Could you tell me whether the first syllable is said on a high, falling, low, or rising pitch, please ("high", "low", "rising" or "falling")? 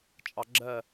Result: low